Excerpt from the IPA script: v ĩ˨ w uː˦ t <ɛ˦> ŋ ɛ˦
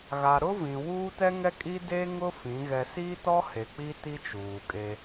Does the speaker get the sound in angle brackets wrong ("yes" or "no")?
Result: no